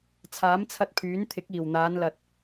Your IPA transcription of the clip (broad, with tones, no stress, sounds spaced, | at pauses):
t͡sʰ aː˨˥ m t͡sʰ ɐ˧ t̚ pʰ yː˨˥ n t̪ʰ ɪ˨˥ k̚ iː˨˩ w n̪ aː˨˧ n l ɐ˨ t̚